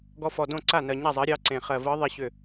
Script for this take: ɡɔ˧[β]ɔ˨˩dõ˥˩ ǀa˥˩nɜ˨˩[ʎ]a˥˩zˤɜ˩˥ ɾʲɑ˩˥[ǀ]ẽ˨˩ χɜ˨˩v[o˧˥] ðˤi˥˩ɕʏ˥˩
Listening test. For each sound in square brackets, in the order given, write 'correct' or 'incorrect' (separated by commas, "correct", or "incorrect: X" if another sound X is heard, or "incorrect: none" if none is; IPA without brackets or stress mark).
incorrect: f, incorrect: ɲ, correct, incorrect: ɤ˧˥